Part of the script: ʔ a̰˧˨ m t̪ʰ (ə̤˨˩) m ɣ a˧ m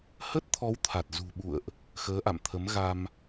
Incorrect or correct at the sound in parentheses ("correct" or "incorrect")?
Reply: incorrect